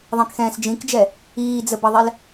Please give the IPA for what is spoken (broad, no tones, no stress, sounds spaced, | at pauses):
ðˤ ɛ̃ k x ɛ̃ː s d͡ʒ ĩ k d͡ʒ ɛ | iː d͡z ə b ʌ ðˤ ɛ l